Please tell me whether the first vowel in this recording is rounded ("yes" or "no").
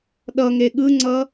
no